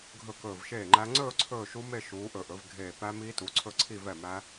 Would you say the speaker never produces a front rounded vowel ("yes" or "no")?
yes